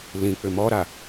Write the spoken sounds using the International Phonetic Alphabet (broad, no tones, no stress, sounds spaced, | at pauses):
l ĩ k͡p ʏ m ɔ ɾ a